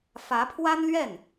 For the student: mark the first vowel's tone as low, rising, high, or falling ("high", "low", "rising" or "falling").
rising